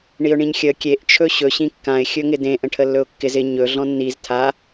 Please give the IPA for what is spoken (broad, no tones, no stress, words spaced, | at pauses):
ɳiʊ̯ɳĩɲxʲə kʲeʔ t͡ʃʰɵɕɵ ɕĩkːãɪ̯ xʲɵŋɪdẽ ʔə̃ʈʰəlːɵʊ̯kːɪz ɪ ɲɵ ɮɔ̃nːiz tʰa